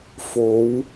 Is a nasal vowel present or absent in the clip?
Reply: absent